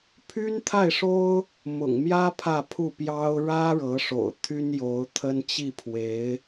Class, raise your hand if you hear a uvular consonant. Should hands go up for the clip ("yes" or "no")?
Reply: no